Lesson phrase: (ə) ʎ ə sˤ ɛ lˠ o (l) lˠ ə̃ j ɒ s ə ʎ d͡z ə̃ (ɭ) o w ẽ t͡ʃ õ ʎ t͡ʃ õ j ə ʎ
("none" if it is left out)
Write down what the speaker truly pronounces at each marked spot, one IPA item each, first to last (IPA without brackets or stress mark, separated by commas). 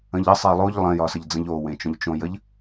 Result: ə̃, ʎ, ʎ